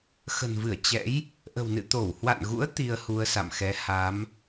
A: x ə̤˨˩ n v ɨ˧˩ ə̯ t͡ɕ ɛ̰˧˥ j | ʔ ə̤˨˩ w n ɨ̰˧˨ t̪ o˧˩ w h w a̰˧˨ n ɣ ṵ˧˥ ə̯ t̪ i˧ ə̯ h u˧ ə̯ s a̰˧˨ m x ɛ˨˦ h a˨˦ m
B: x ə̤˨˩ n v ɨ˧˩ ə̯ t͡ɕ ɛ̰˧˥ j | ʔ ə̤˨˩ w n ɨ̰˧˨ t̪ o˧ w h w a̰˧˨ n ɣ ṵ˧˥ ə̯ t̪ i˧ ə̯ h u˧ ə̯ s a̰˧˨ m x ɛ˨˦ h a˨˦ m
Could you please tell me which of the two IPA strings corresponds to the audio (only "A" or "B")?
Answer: A